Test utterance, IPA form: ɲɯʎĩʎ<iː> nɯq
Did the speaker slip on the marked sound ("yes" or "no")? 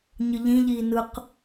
no